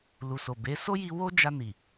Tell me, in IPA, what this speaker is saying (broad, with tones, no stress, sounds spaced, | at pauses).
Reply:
l u˨ s o˨ b e˨˦ s o˦ j i˧ w o˦ d͡ʒ a˧ n i˨